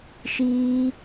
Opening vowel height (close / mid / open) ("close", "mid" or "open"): close